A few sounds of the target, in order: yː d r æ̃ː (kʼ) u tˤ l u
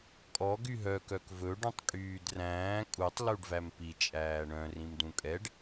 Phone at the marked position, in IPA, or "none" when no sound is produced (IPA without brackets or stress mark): kʼ